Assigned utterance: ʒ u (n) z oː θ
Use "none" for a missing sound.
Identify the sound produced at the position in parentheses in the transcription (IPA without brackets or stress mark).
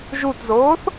t